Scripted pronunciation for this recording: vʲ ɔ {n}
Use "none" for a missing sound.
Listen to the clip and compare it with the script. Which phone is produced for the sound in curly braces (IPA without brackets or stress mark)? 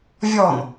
n